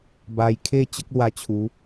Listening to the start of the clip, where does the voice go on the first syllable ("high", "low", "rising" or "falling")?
low